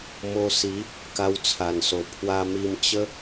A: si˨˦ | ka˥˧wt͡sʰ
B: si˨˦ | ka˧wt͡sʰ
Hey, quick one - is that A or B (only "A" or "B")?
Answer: B